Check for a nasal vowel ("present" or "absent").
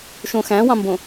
present